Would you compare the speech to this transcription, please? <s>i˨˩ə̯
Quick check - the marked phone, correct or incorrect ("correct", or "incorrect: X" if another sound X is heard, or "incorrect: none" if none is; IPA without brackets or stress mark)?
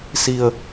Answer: correct